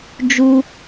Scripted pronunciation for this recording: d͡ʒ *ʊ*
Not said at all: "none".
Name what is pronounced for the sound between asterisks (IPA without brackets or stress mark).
u